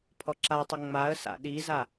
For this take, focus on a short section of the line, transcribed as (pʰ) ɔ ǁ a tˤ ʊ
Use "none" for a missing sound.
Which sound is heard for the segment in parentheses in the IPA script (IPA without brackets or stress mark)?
pʰ